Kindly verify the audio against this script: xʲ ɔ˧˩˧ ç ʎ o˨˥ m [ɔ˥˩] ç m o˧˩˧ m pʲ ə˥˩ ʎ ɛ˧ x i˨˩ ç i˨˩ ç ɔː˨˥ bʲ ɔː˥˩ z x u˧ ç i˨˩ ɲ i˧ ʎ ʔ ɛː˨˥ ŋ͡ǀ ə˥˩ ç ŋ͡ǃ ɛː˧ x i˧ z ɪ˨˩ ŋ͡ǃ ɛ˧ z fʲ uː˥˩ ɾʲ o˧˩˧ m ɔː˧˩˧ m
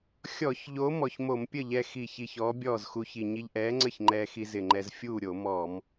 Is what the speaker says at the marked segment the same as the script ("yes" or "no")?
no